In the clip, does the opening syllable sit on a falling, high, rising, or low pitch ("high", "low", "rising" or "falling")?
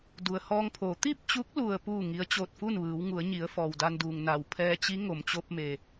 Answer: low